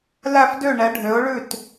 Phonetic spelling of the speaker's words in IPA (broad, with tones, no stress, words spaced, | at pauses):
læ˥˩fdø˥˩ ɳɛ˩˥ɖʱø˩˥ʊ̯ɭʉ˥˩t